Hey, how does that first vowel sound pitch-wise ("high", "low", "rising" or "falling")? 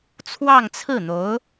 falling